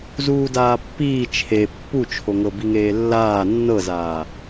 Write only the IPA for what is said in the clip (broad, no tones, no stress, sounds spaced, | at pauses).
z uː d aː pː iː t͡ʃʰ e pː u t͡ʃʰ o ŋ ɤ b i ŋ eː lː aː nː ɤ z aː